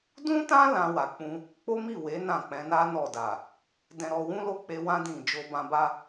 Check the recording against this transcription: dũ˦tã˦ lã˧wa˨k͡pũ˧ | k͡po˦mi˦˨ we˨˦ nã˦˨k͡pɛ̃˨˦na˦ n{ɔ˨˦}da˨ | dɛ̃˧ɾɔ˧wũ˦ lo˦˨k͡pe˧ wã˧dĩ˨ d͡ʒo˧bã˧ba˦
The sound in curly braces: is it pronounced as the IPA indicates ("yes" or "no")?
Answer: no